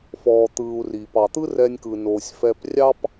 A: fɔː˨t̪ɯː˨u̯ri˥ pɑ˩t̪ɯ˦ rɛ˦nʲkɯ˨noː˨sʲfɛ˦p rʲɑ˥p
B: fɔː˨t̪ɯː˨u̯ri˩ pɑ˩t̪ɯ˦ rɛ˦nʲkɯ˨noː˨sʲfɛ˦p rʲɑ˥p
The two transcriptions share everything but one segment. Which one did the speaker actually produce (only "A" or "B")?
B